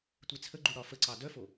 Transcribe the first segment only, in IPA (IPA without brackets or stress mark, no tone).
tʷ